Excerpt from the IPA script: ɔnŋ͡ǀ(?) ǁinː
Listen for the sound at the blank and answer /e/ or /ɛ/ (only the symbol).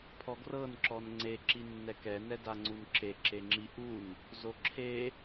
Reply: e